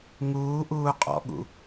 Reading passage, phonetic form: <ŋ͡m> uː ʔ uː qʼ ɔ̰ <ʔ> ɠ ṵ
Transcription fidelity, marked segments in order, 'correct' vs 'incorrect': incorrect: ŋ, incorrect: none

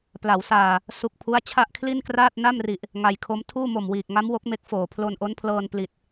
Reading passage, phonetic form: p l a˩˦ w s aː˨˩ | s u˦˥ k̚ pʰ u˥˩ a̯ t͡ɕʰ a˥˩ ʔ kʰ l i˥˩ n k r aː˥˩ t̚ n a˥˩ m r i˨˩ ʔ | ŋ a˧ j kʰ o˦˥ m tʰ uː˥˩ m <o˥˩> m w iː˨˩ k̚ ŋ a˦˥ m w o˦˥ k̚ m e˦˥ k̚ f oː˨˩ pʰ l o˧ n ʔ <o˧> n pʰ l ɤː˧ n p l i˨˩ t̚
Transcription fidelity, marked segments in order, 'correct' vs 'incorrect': incorrect: o˨˩, incorrect: o˦˥

